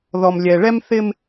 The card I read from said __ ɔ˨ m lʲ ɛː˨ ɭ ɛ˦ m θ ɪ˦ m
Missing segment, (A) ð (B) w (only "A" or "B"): A